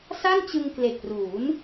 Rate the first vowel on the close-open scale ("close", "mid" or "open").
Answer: open